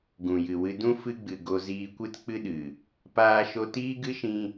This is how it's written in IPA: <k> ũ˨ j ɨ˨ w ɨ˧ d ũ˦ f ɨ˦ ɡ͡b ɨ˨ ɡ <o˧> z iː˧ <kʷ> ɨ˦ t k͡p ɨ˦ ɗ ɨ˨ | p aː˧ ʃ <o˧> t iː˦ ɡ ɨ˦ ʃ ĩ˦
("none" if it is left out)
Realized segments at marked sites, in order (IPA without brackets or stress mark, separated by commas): ɡ, o˧, kʷ, o˧